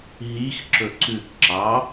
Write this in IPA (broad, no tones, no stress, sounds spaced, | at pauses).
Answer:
ɦ i x ǁ ɵ ǀ ʉ k ǁ ɑ